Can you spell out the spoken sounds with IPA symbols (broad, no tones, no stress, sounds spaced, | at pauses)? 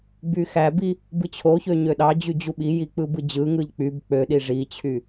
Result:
b y x æ b i | b ɯ t͡ɕʰ o ç ø ɲ ø ɗ ɑ d͡ʑ y d͡ʑ u ɓ i j i k͡p ɯ b ɯ d͡ʑ ɯ ŋ ɯ ʎ k͡p y b k͡p ø ɗ i ʐ i t͡ɕʰ y